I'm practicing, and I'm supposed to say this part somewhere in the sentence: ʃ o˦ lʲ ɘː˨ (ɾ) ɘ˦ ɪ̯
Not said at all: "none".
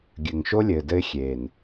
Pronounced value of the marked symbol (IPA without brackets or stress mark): d